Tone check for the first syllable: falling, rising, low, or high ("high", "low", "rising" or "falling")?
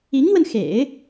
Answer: rising